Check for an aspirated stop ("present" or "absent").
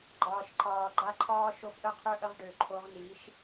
present